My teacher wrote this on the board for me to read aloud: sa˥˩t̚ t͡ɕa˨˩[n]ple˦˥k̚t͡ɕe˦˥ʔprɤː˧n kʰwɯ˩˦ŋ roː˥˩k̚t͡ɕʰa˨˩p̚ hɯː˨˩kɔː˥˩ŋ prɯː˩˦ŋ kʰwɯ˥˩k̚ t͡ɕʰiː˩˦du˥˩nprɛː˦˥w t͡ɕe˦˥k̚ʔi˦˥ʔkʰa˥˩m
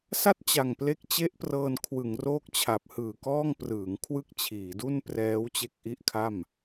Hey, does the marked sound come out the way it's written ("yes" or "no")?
no